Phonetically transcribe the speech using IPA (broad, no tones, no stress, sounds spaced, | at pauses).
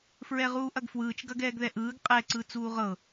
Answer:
f ɹ ɛ ʁ uː ʔ ɐ ɡ f w ɯː t͡ʃ ɡ ɐ ɡ ɛː ɡ ð ɛ ʔ ɯː ɡ qʼ ɛ ǀ ɯ t͡s uː ʁ ɤ